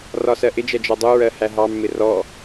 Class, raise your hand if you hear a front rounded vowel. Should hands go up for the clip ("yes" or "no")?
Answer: no